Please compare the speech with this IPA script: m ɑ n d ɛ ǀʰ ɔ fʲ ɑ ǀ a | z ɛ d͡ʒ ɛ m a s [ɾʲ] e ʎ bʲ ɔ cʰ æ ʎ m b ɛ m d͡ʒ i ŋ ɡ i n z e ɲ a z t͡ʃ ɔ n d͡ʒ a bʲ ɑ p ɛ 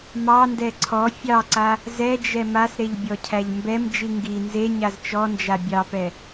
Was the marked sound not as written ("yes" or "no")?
yes